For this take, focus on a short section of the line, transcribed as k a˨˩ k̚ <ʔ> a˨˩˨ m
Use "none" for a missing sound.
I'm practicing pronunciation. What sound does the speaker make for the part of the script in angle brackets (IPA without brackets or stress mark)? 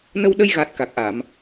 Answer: ʔ